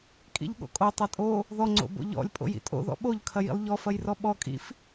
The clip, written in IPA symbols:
kʼ ḭ ʎ ɠ o̰ kʼ o tˤ ɐ tʼ o | ð ɔ ŋ͡ǀ o̰ b o̰ ʎ ɔ̰ lʲ pʼ o̰ j ḭ tʼ o̰ ð ɔ̰ ɓ o ʎ kʰ ɐ j ḭ lˠ ʎ ɔ f ɐ j r ɔ ɓ ɔ kʼ ḭ f

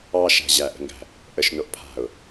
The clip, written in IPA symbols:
ɑ ʃ æ̤ ʑ æ ʔ ə̤ ŋ ɡ æ̤ | ʔ ə ʃ n o ʔ pʰ a̤ ʊ̯

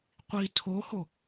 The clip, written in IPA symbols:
qʷ i tʰ o h o

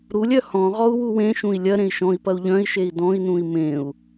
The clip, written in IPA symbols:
ɾ u lʲ œ h ɔ̃ ʁ ɔ u̯ w u w ẽ ʃ ũ i̯ lʲ ɐ ɾ ẽ i̯ ʃ ɔ̃ i̯ p ɐ u̯ ʎ œ̃ i̯ ʃ e i̯ d ɔ̃ i̯ n ũ i̯ m ẽ u̯

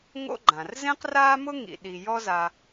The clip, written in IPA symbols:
ŋ o̰˥ ɡ͡ǃ ã˨ r z ẽ˥ q r aː˥ m ʊ˥ ŋ ḭ˨ ɗ i˨ j ɔ˦ z a˨

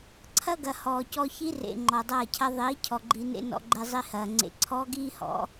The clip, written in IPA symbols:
ǀʰ ɐ˦ ɡ ɐ˨ h ɔː˨ c ɔ˧ ç i˦ r ḛ˨ ŋ͡ǃ ɔ˨ dˤ ɐː˦˨ cʰ ɐ˦ ðˤ iː˨˦ cʰ ɔ˨ ɡ͡ǃ i˧ n ḛ˦ n ɔ̰˧ ɡ͡ǃ e˧ zˤ i˧ h ɐː˨ ŋ͡ǀ ḛ˧ ǀʰ ɔː˦ ɡ iː˦ h ɔ̰˨˦

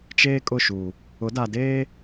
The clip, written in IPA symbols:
t͡ʃ eː˦ kʼ ʊ˦˨ ʃ uː˨ | ʊ˨˦ d a˨ d eː˦

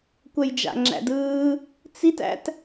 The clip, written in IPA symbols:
kʷ ɛ j d͡ʒ a̰ ŋ͡ǁ æ̰ d ɯː | t͡s i t æ̰ t

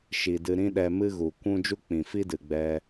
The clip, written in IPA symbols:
ʃ i˨ d ɨ˧ ɾ ĩ˦ ɗ ɛ˧ m ɨ˦ ɣ u˨ kʷ ũ˦ d͡ʒ u˦ k͡p ĩ˨ f i˦ d ɨ˨ ɡ͡b ɛ˧

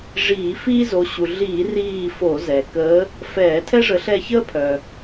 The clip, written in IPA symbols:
ʐ iː˧˩˧ f iː˥ z o˨˦ ɕ u˩ ɮ iː˧˩˧ r iː˦˨ f o˧˩˧ z ɛ˩ k əː˨˦ | f ɛː˧˩˧ tʰ ɛ˥ ʐ ə˨˦ ɬ ɛ˦˨ ç əː˥ pʰ œ˩

